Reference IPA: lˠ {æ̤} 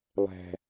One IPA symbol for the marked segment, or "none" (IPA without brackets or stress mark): æ̤